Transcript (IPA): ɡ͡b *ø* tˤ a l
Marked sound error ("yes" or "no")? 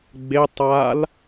yes